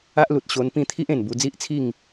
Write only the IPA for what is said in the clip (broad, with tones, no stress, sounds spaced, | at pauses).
a˦ ʔ l u˨ t̚ ɕ o˧ n p ĩ˥˧ t̪ʰ i˦ ʔ ẽ˨˩ n b u˧ d͡z i˦ ʔ t͡sʰ i˥˧ ŋ